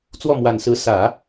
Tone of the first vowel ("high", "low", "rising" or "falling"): falling